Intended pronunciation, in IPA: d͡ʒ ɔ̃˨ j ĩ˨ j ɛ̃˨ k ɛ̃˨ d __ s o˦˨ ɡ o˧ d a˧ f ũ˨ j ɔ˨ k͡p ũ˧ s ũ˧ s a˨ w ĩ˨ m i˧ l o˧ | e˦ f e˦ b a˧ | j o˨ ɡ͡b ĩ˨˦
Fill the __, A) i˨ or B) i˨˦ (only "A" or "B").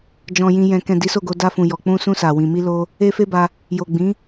B